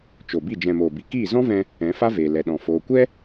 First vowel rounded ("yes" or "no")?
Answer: yes